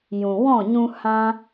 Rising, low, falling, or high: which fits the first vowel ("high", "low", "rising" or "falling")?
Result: low